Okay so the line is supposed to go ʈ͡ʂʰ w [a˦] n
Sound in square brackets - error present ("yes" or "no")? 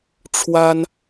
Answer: no